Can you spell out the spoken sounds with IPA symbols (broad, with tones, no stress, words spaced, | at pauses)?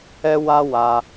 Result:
ɛ˦wa˦ wa˧